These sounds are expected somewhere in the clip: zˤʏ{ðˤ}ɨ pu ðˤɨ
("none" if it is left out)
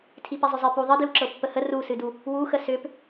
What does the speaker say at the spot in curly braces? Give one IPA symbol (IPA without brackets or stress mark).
zˤ